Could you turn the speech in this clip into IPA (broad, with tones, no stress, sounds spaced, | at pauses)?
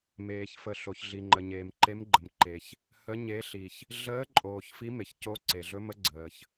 m eː˩ ç f ə˩ ɬ o˩ ç ɮ i˩ ŋ͡ǃ ə˩ ɲ eː˩ m ǃ e˨˦ m ɡ͡ǃ ə˩ m ǃ e˩ ç | h ə˨˦ ɲ e˨˦ ɬ i˩ ç | ɮ əː˨˦ ǃʼ oː˩ ç f i˨˦ m e˩ ç c o˨˦ ǀ e˩ ɮ ɵ˨˦ m ə˨˦ ɡ͡ǀ əː˩ ç